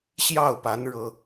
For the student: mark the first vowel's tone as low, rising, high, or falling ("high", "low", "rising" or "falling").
falling